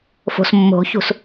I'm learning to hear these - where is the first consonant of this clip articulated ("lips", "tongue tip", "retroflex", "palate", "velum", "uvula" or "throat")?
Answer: lips